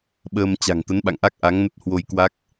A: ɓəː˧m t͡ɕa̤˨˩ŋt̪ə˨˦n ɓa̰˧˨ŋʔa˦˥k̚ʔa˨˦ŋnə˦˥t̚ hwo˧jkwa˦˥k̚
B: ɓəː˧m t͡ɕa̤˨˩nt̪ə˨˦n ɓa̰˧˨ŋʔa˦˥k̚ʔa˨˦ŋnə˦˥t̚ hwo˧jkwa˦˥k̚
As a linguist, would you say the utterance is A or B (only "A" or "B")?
A